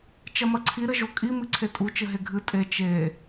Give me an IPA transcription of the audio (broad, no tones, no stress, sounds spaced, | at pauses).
t͡ʃ ɐ m ɐ ǀʰ i ɾ ɘ ʒ o kʼ i m ɨ ǀʰ e tʼ u t͡ʃ ɘ ɦ e ɡʱ ɨ tʼ e t͡ʃ e